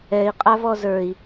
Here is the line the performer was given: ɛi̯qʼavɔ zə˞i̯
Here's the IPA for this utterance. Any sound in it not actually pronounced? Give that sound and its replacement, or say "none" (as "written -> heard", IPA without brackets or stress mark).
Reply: none